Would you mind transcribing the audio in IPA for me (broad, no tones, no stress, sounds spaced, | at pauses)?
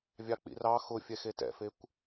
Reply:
vʲ ɑ k͡p ḭ r ɑ x ʊ fʲ ɛ x e t ɛ̰ f e kʷ